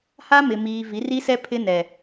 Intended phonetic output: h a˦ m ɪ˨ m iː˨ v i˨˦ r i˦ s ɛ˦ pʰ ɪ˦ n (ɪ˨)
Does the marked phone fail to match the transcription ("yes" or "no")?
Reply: yes